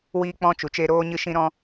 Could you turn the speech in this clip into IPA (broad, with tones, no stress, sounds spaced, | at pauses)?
w iː˦ k͡p ɔ̃˦ t͡ʃ u˨ t͡ʃ e˦ ɾ oː˦ ɲ ɨ˦ ʃ ĩ˦ ɾ ɔ̃˦